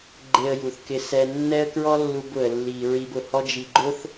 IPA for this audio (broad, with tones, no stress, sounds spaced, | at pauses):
ɡ͡ǃ e˧ ə̯ j u˨ θ k ɪ˧ s ɛ˧ nː ɛ˦ ə̯ k ɹ ɔ˦ lː u˧ b ʊ˨ ə̯ lː i˨ ɹ i˧ b ʊ˨ h ɔ˦ d͡ʒ i˧ ɡ͡ǃ ʊ˦ θ